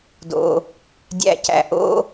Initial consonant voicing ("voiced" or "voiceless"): voiced